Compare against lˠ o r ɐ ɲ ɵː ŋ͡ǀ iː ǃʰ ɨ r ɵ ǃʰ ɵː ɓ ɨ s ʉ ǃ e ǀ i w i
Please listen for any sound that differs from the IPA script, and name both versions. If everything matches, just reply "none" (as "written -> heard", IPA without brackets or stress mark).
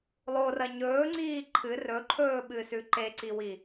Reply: none